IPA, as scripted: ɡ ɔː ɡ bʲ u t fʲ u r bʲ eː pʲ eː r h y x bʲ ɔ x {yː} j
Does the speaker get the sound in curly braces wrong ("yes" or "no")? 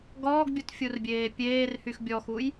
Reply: yes